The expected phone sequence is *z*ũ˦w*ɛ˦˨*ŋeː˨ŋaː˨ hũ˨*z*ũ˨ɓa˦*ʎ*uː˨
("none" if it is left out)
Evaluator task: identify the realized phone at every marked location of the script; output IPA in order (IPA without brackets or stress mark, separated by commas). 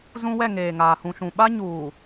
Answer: z, ɛ˦˨, ʃ, ɲ